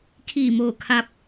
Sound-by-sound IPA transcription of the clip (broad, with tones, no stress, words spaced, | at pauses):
kʰiː˧˩moː˧˩kʰa˧p̚